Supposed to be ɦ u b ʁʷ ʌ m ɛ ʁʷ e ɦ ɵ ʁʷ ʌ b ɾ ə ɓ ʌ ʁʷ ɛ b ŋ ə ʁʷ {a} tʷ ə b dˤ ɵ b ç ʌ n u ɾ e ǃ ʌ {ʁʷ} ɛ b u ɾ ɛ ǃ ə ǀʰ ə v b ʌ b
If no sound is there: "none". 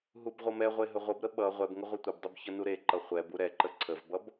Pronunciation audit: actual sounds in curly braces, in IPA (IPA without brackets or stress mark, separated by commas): ʌ, χʷ